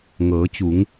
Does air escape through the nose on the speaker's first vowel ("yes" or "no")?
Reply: no